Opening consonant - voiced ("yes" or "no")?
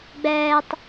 yes